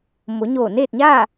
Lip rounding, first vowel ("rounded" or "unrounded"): rounded